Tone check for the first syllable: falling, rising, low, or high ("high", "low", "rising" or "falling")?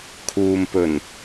low